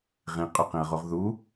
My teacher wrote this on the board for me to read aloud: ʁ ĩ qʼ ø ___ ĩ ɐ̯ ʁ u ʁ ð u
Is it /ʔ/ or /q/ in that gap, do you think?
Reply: q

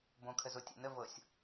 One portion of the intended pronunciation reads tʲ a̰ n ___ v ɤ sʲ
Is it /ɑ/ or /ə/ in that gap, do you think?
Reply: ə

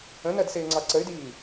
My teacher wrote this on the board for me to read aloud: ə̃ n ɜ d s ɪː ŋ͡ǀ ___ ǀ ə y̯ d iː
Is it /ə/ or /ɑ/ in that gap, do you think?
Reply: ɑ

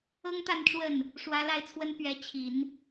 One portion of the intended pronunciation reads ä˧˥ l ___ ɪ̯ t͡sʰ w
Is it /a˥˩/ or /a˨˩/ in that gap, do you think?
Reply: a˥˩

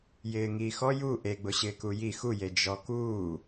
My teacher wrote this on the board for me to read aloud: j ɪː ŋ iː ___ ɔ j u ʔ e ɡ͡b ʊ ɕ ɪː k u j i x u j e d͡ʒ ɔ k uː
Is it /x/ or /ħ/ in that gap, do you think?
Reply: x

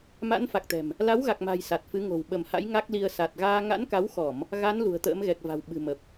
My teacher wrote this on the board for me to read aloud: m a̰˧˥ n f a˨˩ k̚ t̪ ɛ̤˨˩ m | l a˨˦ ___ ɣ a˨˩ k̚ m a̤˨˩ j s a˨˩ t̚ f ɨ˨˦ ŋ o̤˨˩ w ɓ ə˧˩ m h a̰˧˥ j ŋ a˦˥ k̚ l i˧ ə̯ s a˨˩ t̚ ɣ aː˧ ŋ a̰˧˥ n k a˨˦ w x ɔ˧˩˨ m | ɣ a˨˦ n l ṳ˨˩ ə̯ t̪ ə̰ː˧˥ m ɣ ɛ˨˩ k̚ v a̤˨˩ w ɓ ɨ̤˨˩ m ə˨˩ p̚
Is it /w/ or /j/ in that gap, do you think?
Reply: w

